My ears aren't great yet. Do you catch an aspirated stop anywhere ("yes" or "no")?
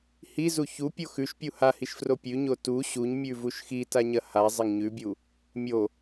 no